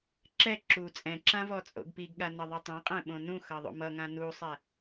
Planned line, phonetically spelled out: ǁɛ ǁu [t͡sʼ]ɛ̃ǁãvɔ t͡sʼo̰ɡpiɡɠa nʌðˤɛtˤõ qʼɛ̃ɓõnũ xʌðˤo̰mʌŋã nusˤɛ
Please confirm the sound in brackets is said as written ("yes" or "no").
yes